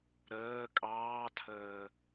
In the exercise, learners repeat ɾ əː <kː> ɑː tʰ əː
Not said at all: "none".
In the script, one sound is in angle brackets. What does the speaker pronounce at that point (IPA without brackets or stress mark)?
kʼ